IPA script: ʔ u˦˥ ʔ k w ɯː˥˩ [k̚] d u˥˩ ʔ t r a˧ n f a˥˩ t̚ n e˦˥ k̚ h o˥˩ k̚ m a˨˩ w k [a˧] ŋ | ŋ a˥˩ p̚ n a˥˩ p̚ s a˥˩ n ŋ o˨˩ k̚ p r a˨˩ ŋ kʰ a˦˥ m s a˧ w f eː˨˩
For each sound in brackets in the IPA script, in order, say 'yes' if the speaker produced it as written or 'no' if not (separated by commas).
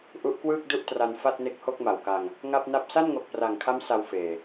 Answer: yes, yes